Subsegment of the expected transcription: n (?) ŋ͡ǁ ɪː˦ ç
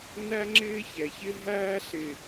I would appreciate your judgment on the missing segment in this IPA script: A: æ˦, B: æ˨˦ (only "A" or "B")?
A